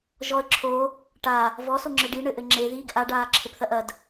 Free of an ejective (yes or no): yes